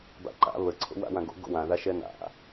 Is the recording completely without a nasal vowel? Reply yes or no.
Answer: no